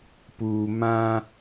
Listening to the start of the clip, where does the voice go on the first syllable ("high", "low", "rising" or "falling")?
low